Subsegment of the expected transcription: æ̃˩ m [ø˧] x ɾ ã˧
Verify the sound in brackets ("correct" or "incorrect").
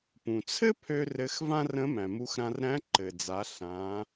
incorrect